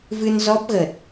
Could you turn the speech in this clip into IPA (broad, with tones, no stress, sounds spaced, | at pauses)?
v ɨ˧ n z ɔ˦˥ p̚ ɣ ə˨˩ t̚